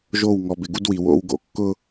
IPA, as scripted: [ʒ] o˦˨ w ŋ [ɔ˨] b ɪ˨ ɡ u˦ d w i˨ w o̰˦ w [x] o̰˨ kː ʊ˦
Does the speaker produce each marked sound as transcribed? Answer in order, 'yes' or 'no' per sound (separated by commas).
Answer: yes, yes, no